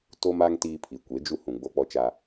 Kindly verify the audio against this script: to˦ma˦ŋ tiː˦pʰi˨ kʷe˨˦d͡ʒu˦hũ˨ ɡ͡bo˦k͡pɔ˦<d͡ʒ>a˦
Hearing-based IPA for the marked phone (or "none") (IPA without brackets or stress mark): t͡ʃ